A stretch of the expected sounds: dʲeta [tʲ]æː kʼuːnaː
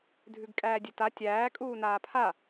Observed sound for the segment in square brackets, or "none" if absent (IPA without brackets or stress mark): tʲ